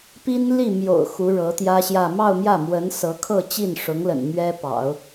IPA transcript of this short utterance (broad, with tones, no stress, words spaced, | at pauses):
pi˥nli˥˩ mjo̰˨˩ʊ̯ xu˧˥ɻɤ˧˥t̪jä˥ɕjä˥˧ mɑ˥˧ʊ̯ mjä˥˩mwə˧˥nsɤ˧˥kʰɤ˥˧ t͡ɕi˥˩nʂʊ˧˥ŋlə̰˨˩n mɥɛ˥pɑ̰˨˩˦ʊ̯